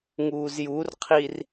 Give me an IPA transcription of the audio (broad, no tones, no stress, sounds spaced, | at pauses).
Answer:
ŋ uː z j u r qʰ i r